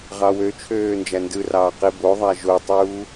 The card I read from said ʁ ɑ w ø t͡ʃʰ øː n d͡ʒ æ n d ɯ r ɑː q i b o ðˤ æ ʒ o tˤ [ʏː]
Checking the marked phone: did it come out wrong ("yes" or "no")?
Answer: yes